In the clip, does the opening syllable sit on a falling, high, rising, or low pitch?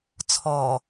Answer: low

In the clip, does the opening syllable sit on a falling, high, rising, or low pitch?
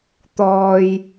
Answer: low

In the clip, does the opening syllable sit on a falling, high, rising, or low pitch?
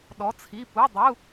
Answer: rising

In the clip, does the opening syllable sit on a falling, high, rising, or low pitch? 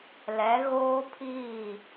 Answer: rising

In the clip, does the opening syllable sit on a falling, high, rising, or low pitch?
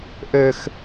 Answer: high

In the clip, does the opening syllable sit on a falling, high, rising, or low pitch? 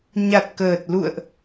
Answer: low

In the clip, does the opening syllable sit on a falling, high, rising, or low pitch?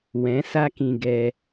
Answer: rising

